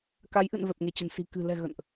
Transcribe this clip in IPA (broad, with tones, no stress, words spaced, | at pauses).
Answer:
ka˨˦jʔɨ̰˧˨n vɛ˨˩p̚ŋe˧˩t͡ɕə̤˨˩n si̤˨˩ kɨ̤˨˩ lɛ̤˨˩ ɣə̰˧˨nʔ